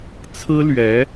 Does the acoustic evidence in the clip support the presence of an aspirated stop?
yes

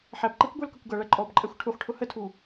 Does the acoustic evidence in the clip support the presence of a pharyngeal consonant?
yes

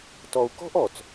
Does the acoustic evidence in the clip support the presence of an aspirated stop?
no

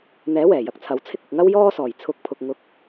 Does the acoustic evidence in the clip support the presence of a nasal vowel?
no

